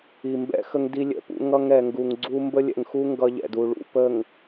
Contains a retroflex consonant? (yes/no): yes